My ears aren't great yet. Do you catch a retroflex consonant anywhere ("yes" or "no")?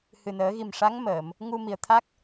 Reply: yes